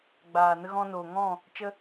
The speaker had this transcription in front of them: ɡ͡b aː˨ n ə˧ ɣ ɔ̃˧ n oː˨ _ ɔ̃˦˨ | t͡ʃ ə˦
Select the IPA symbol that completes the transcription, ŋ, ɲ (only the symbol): ŋ